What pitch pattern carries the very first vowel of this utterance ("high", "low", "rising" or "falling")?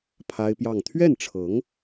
high